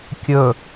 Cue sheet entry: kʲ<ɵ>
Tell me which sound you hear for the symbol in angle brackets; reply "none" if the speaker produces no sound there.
ɵ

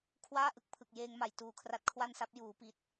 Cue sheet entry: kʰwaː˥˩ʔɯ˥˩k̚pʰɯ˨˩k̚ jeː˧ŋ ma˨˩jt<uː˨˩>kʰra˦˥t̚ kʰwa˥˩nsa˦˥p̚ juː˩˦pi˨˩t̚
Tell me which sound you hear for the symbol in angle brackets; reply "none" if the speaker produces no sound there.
uː˨˩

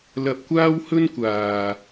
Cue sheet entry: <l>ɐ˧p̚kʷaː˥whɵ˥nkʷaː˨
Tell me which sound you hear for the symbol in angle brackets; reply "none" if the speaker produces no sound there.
l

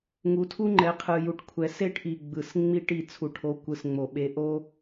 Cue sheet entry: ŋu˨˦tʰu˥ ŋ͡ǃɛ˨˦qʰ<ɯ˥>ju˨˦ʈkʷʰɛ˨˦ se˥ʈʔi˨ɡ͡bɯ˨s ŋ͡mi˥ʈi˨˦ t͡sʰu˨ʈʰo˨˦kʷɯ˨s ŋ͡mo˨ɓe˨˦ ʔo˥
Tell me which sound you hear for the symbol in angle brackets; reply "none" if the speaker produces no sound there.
ɯ˨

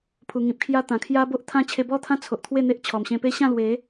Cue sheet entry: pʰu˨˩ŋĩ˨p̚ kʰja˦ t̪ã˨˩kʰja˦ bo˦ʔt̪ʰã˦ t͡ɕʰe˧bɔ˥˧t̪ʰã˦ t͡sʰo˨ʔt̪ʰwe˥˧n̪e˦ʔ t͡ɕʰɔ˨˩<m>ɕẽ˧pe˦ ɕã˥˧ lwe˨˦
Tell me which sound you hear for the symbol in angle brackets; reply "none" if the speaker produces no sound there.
m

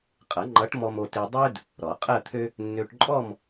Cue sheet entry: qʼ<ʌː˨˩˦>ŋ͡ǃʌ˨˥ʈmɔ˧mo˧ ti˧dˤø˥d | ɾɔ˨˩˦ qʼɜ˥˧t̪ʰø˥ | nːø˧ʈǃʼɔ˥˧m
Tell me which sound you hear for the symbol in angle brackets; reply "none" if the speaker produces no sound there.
ʌ˨˩˦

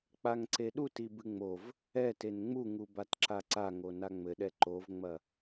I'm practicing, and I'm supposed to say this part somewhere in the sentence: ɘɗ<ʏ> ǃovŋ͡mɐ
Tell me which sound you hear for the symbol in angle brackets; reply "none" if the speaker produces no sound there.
ɛ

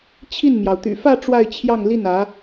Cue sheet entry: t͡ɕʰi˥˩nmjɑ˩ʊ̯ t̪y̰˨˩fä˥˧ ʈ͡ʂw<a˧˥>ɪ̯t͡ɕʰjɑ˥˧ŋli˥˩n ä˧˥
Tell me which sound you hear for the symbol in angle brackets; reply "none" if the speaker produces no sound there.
a˥˧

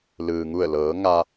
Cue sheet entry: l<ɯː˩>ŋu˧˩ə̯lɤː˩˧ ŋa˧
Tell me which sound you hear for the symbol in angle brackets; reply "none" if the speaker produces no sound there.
ɯː˩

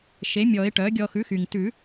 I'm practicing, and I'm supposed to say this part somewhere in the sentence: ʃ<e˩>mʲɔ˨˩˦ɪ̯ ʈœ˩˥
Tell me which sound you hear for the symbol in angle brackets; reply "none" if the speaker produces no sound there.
e˩˥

